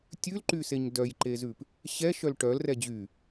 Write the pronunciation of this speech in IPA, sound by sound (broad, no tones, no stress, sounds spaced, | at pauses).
tʲ ʉ l ǃ y s e ɲ d œ j ǃ e z ʉ p | ɕ ɛ ʃ œ l ʈ œ l r ɛ d͡ʑ y